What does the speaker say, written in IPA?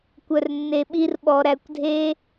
kʷ œ˧ r nː e˧ ɓ i˦ r ɓ ɔ˧ ɾ æ˧ kʷ dʱ e˦

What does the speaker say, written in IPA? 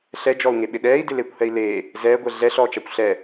ɬ ɛ d͡ʒ ɔ u̯ ŋ e ɓ ɪ ɗ ɛː i̯ d ɪ l eː kʷ h ɛ i̯ l eː | z ɛː ɡʷ ɛ ɮ ɛ ɬ ɔː t͡ʃ a kʷ ɬ ɛ

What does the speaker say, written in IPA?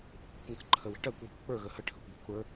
kʷ ə̤ kʷ ə̤ kʷ ŋ ə̤ ǃʰ ə w e̤ ʈ ɜ kʷ w e̤ kʷ k͡p ə˞ ɣ ə h ə ʈʰ ə kʷ b e̤ kʷ ɽ ə˞

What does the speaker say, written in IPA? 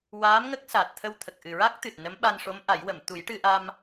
w aː˧˥ m ŋ ə˦˥ k̚ s aː˨˩ t̚ t̪ʰ ə˧ w t̪ʰ ə˨˩ k̚ ʔ ɨ˨˩ ɹ a˦˥ k̚ t̪ ɨ˨˩ t̚ n ə˧˥ m ɓ a˧ n ʂ o˧˥ m ʔ a˨˩˦ j w ə˨˩˨ m t̪ u˨˩˦ j ʈ ɨ˧ ʔ a˧ m

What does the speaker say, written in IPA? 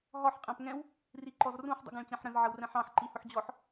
ɦ ɒ ħ qʼ æ̃ p ŋ ɛ̃ w | r i ǃ ɔ z r ũ ħ dˤ ṵ ɡ æ̃ ɭ t͡ɕ æ̃ ħ ɾ ə̃ z ʕ ə w r ɛ̃ ħ ɑ̃ ħ ǃ i h ʊ ħ d͡ʑ ɔ ħ

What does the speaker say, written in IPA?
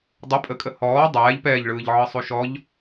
dˤ ə pʼ ə kʼ ə h ɔː dˤ ɛː ʎ p ɛː ʎ ɭ ɯː ʎ ʕ ɯ sˤ u ʃ ɔ ʎ

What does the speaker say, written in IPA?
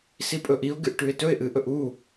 s i pʼ ɵ ʔ i ʊ̯ ɡ ɨ ʔ ʈ ʉ ɪ̯ t ɵ ɪ̯ ʔ ɨ ʔ ɵ ʔ u

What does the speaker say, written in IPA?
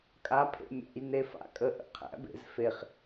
kʼ a pʰ ḛ mʲ æ̰ j n e f a̰ kʼ ə ʔ ə̰ qʰ æ̰ b ḛ z f e χ

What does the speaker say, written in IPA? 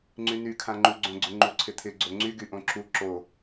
ŋ͡ǀ y n y kʰ ã ŋ͡ǃ u ɡ͡ǀ õ ɡ͡ǀ ʏ ŋ͡ǃ u ǀʰ ɪ t̪ʰ ɪ ɡ͡ǀ o ŋ͡ǀ y ɡ y ʔ õ ǁ u ǁ o

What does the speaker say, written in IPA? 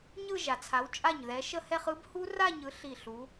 ɲ ɯ˥˧ ʒ a˨ t͡sʰ a˨˥ w t͡ʃʼ a˥˩ ɲ ð ɛ˨˥ ʃ ə˥˧ h ɛ˥˧ χ ɯ˦˥ b h u˦˥ r a˥˧ ɲ ɯ˨˥ ɬ i˥˩ ɬ u˨˥

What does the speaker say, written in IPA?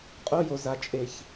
qʼ o˦ j o˩ z a˨ t͡ʃʼ e˩ ç

